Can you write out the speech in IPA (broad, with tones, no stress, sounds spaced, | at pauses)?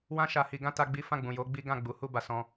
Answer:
w ã˦ ʃ a˧ h i˧ ɡ ã˦ t a˦ ɡ͡b i˦ f ã˦˨ ɡ͡b ũ˨ j o˨˦ ɡ͡b i˦ ɡ ã˦˨ ɡ͡b u˨˦ h u˦˨ b a˧ s ɔ̃˧